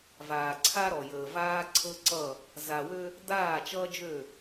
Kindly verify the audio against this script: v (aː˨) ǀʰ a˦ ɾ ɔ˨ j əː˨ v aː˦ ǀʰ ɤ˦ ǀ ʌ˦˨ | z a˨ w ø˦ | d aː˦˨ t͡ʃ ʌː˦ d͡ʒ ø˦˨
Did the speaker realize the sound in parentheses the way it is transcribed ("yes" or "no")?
yes